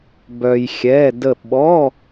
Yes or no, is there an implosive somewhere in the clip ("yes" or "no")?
yes